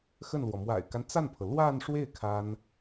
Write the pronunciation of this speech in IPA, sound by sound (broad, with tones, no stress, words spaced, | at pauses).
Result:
xə˥˩nlwɔ˩ mwa̰˨˩ɪ̯ka˦nt͡sa˥˩npʰɤ˩ lwa˥˧nʂwe˥˩ɪ̯ kʰa˥n